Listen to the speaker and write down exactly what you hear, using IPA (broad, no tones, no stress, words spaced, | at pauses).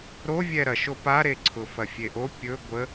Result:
ɾovʲɛ ɾɐʃo paɾeǀʰʊ fɐfʲeʔo pʲɵ ɡʷə